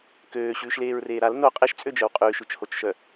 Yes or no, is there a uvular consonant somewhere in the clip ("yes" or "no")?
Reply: yes